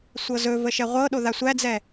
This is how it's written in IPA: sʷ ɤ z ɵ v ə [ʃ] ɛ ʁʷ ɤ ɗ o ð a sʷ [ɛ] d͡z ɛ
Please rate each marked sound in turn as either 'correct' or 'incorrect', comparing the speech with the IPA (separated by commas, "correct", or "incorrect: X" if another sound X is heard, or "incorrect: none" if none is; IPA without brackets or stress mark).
correct, incorrect: æ